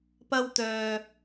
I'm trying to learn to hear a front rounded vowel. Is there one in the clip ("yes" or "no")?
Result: yes